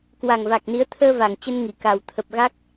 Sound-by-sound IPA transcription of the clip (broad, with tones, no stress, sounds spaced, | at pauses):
k w a˨˩ ŋ v a˨˩ k̚ n i˨˦ ə̯ t̪ʰ əː˧ v a˨˩ ŋ t͡ɕ ə˧ n ŋ i˧˩ k a˨˩ w t̪ʰ ə˨˩ p̚ ɣ a˦˥ k̚